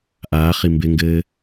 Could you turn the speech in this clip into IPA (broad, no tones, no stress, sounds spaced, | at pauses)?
ʔ aː χ i m b ɪ ŋ ɡ ɘː